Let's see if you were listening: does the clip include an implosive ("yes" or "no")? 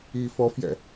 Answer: no